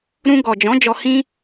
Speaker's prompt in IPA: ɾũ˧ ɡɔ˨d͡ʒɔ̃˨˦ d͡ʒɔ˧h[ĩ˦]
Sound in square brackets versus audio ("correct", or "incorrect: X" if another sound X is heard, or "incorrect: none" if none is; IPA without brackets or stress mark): correct